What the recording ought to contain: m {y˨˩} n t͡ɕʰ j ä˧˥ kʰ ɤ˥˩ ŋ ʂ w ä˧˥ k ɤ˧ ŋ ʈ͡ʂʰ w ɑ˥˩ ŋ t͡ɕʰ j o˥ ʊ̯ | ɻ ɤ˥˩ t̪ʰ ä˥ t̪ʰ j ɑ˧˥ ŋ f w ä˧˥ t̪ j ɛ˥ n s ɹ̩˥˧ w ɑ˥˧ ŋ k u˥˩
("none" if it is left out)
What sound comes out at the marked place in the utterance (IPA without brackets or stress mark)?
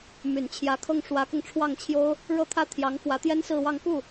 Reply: y˨˩